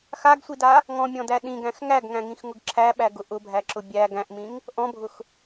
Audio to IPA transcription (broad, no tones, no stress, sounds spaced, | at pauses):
x a ɡ sʷ i d a | ŋ ɔ̃ mʲ ɔ̃ d æ ɗ ĩ ɡ æ̃ x ŋ æ ɡ ŋ æ̃ ŋ ĩ x ŋ ʊ ɡ ǁʰ æ ɓ æ ɡ ʊ ʔ ʊ bʱ æ ǁ ʊ bʲ æ ɡ æ̃ ʔ m ĩ ŋ | ʔ ɔ̃ bʱ ʊ x